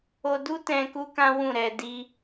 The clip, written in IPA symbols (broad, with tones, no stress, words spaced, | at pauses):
o˧du˦tɛ̃˧ ku˦kã˦wũ˦˨ɾɛ˧ di˦